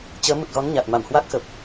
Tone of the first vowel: rising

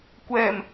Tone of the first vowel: low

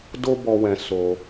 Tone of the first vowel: high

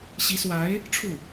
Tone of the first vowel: rising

